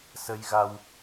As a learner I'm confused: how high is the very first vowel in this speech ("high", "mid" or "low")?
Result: mid